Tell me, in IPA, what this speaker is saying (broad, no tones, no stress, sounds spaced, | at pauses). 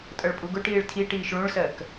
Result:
tʼ ʌ ɭ pʼ u ɡ ʊ ʈ iː ɭ tʰ i ʈ iː ʃ ɭ ũ ɭ s ɜ k